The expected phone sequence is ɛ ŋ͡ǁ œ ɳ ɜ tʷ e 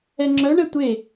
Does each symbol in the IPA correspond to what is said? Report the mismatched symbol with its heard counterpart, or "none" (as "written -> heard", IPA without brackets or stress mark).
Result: ɜ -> ɛ